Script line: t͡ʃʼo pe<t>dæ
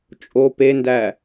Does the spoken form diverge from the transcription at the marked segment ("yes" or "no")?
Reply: yes